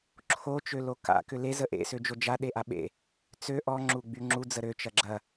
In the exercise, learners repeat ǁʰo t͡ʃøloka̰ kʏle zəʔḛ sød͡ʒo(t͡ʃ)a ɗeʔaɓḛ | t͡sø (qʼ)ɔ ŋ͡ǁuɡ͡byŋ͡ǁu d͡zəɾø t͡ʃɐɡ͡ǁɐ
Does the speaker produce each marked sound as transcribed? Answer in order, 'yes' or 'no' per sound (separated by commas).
no, no